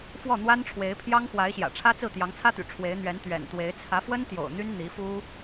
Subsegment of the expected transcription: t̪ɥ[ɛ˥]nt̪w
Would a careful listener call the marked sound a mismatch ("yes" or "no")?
yes